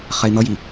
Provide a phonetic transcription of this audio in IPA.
χɛi̯n̪ʌji

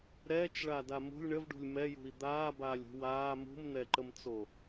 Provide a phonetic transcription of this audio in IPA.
ɾɛːt͡ʃɭada mṳlʲ ɳəvɖṳlʲ mɛjṳi̯ d̪aːbaːlʲṳ waː mṳmn̪ɛǃəmt͡so

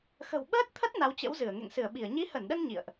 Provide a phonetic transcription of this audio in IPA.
xə̤˨˩wɓəː˦˥t̚t̪ʰə˦˥t̚ na˨˦wt͡ɕə̰˧˥wzɨ˧˩ə̯ ŋḛ˧˨ŋsɨ˧˩ə̯ɓi˧˩ə̯ ɲi˨˦hə˧˩nɗə˧n ɲḭ˧˨ə̯ʔ

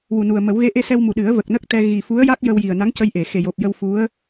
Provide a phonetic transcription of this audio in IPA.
wu˨˩nu˨˩ə̯mə˨˩˦w ɣe˧˥ʔe˧sɛ˧wmu˨˩ ɗɨ˨˩˦ə̯və˨˩k̚nə˦˥k̚t̪ɛ˧ ɣi˨˩fu˧˥ə̯ja˦˥k̚ jə˧w ji˨˩ə̯na˧˥ŋcə˧jʔe˨˩˨ xe˨˩jo˨˩p̚jə˧w fu˧˥ə̯

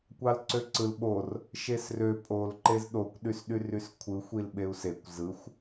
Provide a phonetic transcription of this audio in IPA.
kʷɑlǀøǀɯl ɓor | ʃesrø pʼol ǃezɗokʷɗysɗyr yskʷʰɯxʷil ɓeu̯sekʷ zɯxʷ

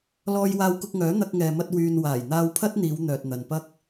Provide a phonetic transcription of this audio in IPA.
lɔː˧jwaː˧wkʊ˧k̚ŋœː˨˥ n̪ɐ˧k̚ŋɛː˨mɐ˧t̚ wyː˨nwaː˨˩jn̪aː˧w pʰɐ˥t̚n̪iː˨˧w n̪œː˨t̚n̪ɐ˨npɐ˥k̚

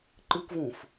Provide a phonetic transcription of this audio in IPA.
ǃɨkʷvũf

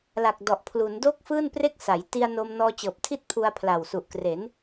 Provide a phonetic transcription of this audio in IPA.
la˨˩k̚dɔ˨˩ʔ pʰlu˩˦n do˥˩k̚fɯː˥˩n pre˥˩k̚sa˩˦j ti˧a̯no˧m nɔː˧t͡ɕɤː˨˩p̚tʰi˥˩t̚ pʰu˧a̯pʰla˨˩w su˨˩ʔkre˩˦n

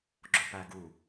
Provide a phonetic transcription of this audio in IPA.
ɡ͡ǁopæɡu

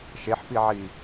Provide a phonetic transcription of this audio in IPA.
ʃeħpiʕi

